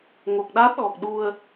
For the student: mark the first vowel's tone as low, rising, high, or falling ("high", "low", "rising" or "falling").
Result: low